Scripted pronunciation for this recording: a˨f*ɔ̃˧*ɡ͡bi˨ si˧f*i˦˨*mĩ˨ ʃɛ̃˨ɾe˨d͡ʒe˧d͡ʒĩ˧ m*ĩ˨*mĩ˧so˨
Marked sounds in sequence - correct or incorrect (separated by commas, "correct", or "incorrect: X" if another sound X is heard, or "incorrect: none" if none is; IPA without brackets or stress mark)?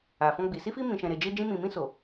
correct, incorrect: i˧, correct